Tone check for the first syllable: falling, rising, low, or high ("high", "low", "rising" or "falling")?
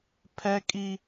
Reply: high